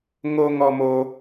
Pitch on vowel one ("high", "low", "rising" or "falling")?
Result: high